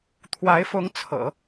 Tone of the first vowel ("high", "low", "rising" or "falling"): rising